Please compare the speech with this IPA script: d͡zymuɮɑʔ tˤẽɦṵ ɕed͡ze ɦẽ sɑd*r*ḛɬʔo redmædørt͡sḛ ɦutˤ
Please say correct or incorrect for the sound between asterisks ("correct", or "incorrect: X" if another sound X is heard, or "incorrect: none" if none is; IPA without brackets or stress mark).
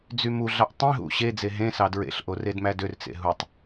incorrect: ɹ